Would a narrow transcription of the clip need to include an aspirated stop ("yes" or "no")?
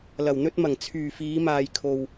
yes